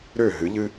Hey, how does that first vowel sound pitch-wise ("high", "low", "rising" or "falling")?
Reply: falling